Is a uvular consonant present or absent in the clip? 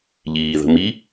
absent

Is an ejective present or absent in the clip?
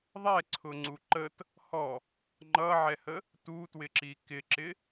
absent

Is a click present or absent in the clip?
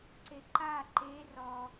present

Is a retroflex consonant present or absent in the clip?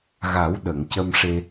present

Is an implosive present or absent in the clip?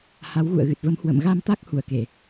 absent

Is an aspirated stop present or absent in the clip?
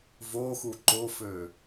absent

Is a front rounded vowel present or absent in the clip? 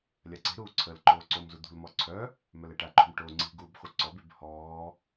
present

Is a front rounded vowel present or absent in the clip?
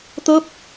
absent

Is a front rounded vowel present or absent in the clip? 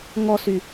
present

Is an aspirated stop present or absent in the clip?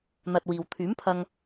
present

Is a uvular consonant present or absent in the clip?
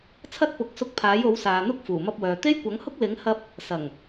absent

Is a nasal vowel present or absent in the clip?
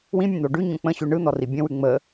present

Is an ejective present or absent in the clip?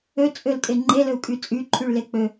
present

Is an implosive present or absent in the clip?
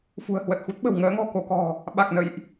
present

